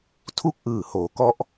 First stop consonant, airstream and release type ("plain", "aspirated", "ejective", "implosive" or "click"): aspirated